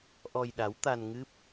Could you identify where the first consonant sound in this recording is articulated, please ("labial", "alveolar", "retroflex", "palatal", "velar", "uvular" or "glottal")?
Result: glottal